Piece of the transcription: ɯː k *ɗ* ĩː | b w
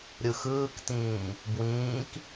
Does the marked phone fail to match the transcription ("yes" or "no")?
yes